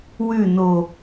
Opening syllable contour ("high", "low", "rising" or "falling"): falling